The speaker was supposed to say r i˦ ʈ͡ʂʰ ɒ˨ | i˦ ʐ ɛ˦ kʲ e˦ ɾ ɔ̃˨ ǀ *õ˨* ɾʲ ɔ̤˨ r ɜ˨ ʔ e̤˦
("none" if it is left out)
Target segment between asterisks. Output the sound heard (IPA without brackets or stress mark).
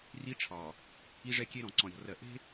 ɔ̃˨